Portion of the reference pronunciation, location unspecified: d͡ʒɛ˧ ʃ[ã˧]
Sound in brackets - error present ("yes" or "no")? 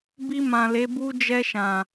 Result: yes